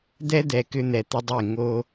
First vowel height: mid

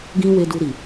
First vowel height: high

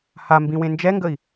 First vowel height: low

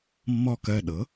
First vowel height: mid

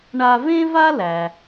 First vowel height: low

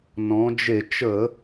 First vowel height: mid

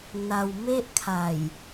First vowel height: low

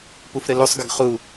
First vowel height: high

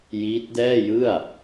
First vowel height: high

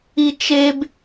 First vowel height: high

